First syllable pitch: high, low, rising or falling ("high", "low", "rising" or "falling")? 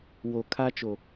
low